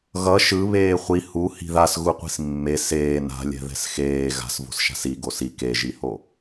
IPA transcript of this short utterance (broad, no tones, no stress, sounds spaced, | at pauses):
ɣ ʌ ʃ ɯ β eː χʷ i h u h i̤ ð a s ɣ u qʷ i̤ s mː e s eː n a̤ lʲ ɛ̤ ð ɛ̤ s x eː ɣ a̤ s v o̤ s ʃ a̤ s i ɡ o s i k e ʒ i h o